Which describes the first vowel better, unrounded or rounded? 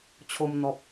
rounded